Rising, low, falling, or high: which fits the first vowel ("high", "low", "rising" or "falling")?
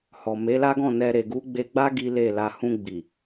low